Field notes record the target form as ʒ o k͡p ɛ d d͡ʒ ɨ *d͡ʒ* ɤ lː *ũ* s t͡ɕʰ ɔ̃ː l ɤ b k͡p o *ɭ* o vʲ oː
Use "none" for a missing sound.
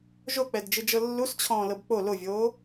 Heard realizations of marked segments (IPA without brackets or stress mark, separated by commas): d͡ʒ, u, l